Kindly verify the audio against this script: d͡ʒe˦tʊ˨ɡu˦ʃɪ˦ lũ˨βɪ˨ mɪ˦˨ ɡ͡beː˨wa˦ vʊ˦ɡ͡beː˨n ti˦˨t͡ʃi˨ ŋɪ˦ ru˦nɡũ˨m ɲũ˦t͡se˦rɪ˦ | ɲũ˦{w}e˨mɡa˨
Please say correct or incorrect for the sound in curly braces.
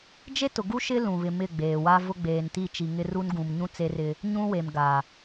correct